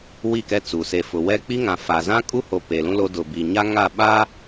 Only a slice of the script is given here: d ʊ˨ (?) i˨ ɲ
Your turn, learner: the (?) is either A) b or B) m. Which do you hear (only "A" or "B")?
A